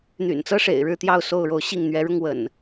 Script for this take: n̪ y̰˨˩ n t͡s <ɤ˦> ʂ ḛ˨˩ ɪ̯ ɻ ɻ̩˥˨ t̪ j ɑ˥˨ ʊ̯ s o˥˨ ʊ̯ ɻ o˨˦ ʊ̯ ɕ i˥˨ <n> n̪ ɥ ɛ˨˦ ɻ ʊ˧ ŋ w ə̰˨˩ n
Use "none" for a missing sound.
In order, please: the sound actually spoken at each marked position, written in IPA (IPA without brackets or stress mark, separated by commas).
ɤ˦, ŋ